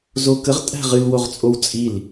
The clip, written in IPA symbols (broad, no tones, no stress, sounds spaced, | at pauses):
z o k ə ʁ tʼ æ̤ ʁ ɨ l w o ʁ t͡sʼ o w t͡sʼ i l